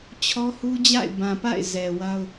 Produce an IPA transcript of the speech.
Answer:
t͡ɕʰɔ˦hu˦ d͡ʑa̰˦˨ɪ̯bã˨pa̰˦˨ɪ̯ zɛ˨wa˦ʊ̯

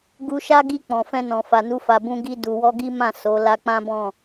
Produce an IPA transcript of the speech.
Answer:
ɡu˧ʃa˦ɡi˧ k͡pɔ̃˨fɛ̃˧nɔ̃˨ fa˨nu˧fa˨ bũ˧ɡi˧ du˨wɔ˧ɡi˦ mã˦˨ so˨˦ la˧k͡pã˦bɔ̃˦˨

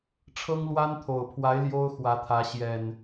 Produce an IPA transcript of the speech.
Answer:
ʈ͡ʂʰɤ˦ŋlwa˦nt̪ʰo˨˩ʊ̯pʰwa˨˦ɪ̯ ljo˦ʊ̯xwä˨˦ t̪ʰä˨˦ɕjɛ˨˩n

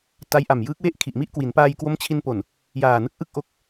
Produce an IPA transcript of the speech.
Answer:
ta˦˥jʔa˨˩mjɯː˦˥k̚we˥˩ʔ kʰi˨˩ʔmi˥˩ʔkwi˩˦n paː˧jkwo˦˥mt͡ɕʰi˧n po˨˩n | jaː˨˩nɯ˦˥k̚ ʔɯ˥˩k̚ ʔo˦˥k̚

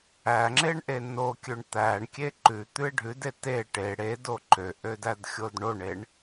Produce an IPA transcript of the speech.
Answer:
æ ŋ͡ǁeɳʔenokʲøɳ t̪æɳkʲe ǃʉt̪ʉe̯ ɖʱʉde te ʈe ɽe doǃøʔø dædxʲodɳoɳeɳ

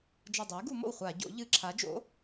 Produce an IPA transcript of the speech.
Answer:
d͡ʒɐ˧˩dˤu˩˥j ɡu˧˩˧ mo̰˥˩wχʷa˧˩˧ɟo̰˩˥ ʎɨ˧˩˧ǁʰa˩˥d͡ʒo̰˩˥

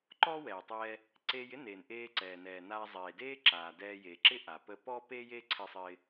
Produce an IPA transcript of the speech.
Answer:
ǃɔː˥wɛː˩tˤɛː˧ | ǀe˧jɪ˥neː˩n ʔeː˧ǀɛː˩nɛː˩naː˧ zˤeː˩deː˥ǁaː˩ dɛː˧je˩ǁɪ˥ ʔa˩pə˧pɔ˥ pe˥je˥ ǀʰɪ˧sˤɪː˧

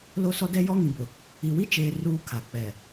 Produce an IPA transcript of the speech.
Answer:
lo˦sɔ˦ dɛ˦jɔ˦ŋĩ˨bʊ˨ | i˨wi˦t͡ʃeː˨ ruː˦kʰa˨k͡pɛ˨

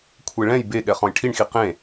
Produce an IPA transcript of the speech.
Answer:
kʷʰeɭɛ̃j beɠɛ χɔ̃jʈʰiɳxi qẽ

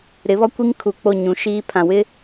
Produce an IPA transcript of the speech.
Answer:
ɾɪ˨˦βɔ˦ kʷi˦ŋ kʰu˨ k͡po˦˨ɲũ˨ʃiː˦pʰã˨ wɪ˦

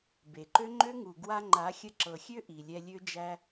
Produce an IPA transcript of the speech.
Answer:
be˨ǃø˦ ŋ͡ǃø˦ŋu˨ ɡwa˧ŋ͡ǃa˨˦ xʲə˧ǁɤ˨xʲø˦ ʔi˨lʲɛ˧lʲø˦d͡ʒæ˦

